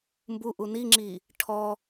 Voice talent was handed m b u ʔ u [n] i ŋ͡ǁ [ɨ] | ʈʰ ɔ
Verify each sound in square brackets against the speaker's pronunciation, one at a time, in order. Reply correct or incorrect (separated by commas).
correct, incorrect